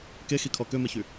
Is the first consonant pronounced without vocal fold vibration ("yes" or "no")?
yes